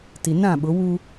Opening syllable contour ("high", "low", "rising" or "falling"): low